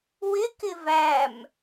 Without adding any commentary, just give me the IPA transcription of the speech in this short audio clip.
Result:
wɪkɪ væm

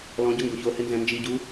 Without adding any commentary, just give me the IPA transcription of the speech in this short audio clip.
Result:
lɔ̃ɟʊ ŋɡoçohɪ nzɛ̃nd͡ʒiɟu

